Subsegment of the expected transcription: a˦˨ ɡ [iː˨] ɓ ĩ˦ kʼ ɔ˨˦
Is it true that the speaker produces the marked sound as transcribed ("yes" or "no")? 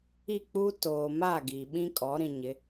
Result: yes